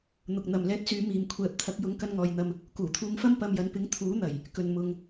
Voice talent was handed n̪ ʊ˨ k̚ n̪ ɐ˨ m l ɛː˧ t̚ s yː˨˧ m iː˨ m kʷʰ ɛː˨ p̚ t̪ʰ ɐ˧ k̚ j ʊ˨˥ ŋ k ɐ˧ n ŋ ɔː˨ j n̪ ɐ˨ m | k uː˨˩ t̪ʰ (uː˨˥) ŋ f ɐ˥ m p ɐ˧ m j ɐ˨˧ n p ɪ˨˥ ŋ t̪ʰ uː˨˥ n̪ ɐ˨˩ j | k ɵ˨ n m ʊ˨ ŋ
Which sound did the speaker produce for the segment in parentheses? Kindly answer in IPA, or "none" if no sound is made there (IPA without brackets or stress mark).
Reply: uː˧